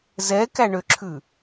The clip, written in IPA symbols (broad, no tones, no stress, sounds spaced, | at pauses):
z ɛ k æ ɳ ø ǁʰ ʉ